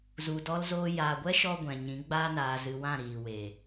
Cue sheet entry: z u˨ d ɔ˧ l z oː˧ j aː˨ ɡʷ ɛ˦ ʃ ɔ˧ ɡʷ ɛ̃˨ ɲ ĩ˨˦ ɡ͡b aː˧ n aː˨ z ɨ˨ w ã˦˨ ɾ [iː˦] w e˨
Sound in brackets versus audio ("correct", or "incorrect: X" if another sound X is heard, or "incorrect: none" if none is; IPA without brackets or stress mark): incorrect: iː˨